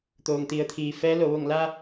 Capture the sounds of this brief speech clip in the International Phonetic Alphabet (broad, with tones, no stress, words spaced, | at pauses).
t̪oː˩ŋt̪i˩˧ə̯ t̪ʰiː˩fɛː˧˥lo˩˧ ʋo˧˩ŋla˧